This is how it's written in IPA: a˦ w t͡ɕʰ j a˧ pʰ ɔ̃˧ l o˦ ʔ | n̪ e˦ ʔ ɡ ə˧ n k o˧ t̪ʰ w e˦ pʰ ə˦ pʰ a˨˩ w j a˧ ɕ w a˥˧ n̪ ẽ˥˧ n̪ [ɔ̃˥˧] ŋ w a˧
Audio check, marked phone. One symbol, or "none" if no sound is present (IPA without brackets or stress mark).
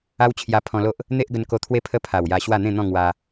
ɔ̃˥˧